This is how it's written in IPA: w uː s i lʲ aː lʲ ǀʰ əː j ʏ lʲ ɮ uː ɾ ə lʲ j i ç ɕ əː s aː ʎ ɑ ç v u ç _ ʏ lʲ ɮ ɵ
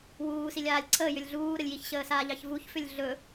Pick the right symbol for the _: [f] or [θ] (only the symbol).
f